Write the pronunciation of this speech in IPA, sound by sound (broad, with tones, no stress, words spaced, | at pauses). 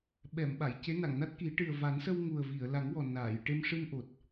ɓɛ˨˩˨m ɓa˨˩˨jce˧˥ na˨˩˨ŋna˦˥t̚ki˨˩˦ ʈɨ˨˩ə̯ va˨˩˦nsə˧w ŋu˨˩ə̯vi˨˩˨ə̯la˨˩˦ŋwɔ˨˩ naː˨˩˨j ʈe˧mʂɨ˧nʔo˨˩t̚